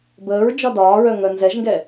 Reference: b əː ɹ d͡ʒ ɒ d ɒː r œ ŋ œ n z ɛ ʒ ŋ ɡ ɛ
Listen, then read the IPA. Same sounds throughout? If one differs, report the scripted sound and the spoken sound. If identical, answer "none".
r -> ɹ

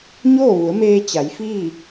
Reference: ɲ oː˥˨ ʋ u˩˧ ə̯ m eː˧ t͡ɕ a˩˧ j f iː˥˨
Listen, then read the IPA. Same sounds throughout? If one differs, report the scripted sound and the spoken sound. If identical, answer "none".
none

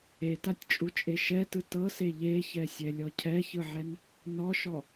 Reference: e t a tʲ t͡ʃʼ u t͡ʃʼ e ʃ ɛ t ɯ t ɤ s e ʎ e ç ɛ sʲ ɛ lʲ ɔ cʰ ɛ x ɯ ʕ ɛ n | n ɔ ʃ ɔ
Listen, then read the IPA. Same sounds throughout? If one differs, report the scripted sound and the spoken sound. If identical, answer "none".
x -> ç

